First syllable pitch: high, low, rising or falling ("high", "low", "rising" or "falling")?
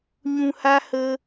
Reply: low